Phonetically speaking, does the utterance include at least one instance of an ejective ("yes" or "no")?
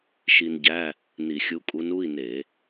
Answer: yes